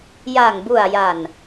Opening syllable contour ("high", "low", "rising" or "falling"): low